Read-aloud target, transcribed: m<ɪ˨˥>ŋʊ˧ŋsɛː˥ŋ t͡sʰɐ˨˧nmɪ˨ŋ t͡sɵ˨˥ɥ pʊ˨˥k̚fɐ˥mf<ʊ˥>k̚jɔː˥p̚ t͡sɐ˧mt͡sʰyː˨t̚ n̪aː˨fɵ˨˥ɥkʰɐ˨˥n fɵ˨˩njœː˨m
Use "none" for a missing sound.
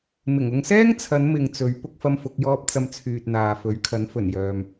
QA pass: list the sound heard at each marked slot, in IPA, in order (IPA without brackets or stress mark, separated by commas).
ɪ˨˩, ʊ˨˥